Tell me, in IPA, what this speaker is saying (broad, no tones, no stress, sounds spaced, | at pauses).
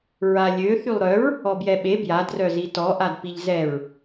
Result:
ɹ a lʲ ø θ y lˠ ɾ œ ɹ | ɔ b j ɛ ɓ e b j a d r œ z i t ɔ ʔ a d p i ʎ z ɛ ɹ